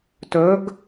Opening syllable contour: rising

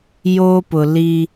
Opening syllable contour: high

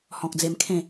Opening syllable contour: low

